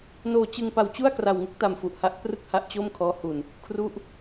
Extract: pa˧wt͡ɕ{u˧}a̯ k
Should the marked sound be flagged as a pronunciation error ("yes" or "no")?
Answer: yes